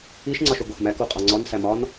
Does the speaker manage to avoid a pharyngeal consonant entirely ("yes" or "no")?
yes